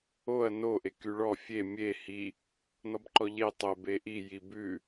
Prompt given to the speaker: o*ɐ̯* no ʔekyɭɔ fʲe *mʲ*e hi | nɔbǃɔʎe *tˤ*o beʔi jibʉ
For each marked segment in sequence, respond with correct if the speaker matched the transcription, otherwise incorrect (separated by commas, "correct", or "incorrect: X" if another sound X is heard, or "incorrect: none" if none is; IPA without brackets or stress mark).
correct, correct, correct